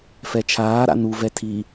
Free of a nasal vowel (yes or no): yes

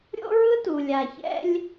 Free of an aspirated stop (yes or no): yes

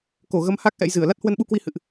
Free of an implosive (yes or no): no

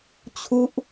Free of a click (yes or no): yes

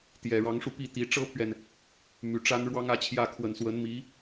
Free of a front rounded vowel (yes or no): no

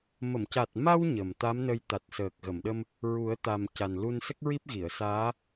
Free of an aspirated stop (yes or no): yes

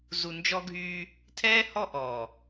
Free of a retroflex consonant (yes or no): yes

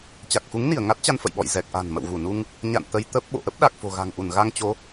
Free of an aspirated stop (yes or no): yes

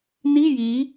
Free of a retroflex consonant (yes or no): yes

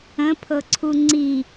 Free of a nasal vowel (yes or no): no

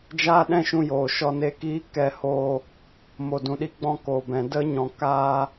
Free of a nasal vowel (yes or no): no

